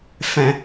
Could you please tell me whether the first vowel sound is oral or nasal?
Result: nasal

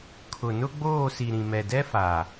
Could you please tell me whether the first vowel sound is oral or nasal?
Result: oral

